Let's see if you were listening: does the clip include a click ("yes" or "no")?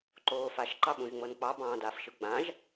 yes